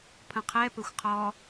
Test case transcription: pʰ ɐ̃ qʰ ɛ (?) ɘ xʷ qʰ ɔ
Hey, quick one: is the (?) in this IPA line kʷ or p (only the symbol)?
p